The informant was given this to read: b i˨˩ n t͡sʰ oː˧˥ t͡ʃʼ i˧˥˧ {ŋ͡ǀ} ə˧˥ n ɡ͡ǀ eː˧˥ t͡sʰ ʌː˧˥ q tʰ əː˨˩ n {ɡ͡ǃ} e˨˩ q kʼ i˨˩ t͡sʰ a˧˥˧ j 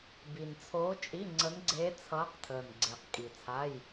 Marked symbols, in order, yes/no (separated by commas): yes, no